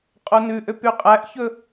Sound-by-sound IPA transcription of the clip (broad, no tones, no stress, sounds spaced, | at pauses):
qʼ o n ʉ ʔ ø p y qʼ æ ʔ ç ɵ